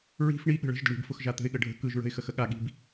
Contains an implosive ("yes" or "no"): yes